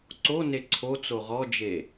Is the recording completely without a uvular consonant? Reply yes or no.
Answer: no